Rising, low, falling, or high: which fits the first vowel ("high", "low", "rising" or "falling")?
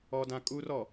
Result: low